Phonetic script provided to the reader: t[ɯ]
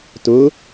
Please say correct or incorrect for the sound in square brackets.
incorrect